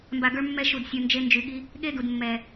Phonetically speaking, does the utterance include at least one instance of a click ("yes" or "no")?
no